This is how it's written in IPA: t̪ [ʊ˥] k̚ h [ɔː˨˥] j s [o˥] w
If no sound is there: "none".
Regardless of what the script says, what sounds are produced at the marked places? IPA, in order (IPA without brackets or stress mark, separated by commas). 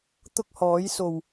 ʊ˥, ɔː˨˥, o˨˩